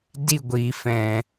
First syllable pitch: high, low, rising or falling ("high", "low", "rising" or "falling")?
falling